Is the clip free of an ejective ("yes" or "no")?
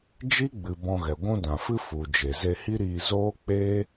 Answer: yes